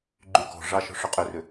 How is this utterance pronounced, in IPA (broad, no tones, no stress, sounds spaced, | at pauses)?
ɡ͡ǃ y k ɔ̤ ʐ ɑ ʃ ɔ̤ ʂ ʏ qʼ ʏ r ʏ